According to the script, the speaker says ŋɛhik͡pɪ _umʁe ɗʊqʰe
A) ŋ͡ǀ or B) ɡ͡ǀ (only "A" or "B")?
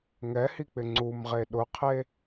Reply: A